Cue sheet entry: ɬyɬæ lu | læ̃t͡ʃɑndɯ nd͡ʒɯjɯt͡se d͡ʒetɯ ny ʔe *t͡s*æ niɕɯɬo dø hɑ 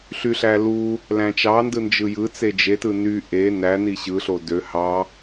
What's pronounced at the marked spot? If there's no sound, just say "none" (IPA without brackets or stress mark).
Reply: n